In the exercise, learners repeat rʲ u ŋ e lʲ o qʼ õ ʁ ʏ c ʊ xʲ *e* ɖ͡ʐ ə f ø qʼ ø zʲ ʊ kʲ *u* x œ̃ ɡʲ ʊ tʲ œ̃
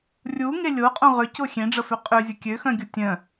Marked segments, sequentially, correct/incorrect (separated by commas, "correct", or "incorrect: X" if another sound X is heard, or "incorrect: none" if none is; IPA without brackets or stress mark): incorrect: ẽ, incorrect: ø